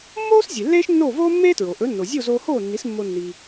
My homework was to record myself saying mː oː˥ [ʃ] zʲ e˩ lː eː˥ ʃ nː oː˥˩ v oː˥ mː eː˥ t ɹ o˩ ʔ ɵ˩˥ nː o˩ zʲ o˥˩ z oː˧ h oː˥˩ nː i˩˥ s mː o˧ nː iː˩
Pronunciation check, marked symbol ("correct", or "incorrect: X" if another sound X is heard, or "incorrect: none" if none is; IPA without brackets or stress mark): incorrect: s